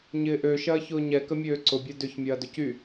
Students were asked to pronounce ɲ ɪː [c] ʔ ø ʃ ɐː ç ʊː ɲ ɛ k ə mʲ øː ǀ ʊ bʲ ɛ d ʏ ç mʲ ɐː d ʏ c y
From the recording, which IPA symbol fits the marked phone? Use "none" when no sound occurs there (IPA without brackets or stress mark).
none